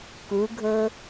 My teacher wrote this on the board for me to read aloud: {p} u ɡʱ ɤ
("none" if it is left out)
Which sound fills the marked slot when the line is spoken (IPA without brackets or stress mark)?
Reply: k